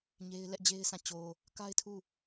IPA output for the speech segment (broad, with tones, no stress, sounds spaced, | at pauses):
ɲ e˦ ɪ̯ l ɛ˦ ʔ d͡ʑ e˦ ɪ̯ s ã˦˨ t͡ɕ o˨ | k a˦ ɪ̯ tʰ u˦˨